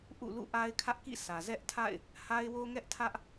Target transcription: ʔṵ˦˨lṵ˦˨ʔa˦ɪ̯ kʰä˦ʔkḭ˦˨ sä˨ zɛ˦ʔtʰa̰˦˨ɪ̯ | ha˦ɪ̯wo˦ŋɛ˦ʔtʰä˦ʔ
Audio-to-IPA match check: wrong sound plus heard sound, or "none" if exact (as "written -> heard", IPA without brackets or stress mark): none